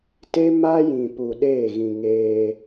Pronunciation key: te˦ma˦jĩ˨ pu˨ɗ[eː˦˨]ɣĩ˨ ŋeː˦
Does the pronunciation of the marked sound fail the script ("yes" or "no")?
no